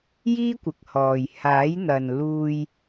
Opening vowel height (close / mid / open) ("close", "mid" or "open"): close